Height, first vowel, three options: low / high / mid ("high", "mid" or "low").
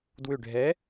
high